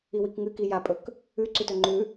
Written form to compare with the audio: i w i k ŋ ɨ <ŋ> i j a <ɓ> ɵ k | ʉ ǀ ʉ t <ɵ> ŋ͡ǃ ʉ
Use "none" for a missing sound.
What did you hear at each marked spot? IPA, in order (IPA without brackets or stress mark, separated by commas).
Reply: k, pʼ, ɵ